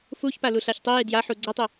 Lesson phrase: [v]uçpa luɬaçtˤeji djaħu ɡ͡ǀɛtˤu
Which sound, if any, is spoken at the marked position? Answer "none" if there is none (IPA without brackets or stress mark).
f